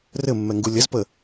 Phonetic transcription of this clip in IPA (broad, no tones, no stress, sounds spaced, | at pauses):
r ɘ mː ɛ ŋ ɡ u lʲ ə z p ə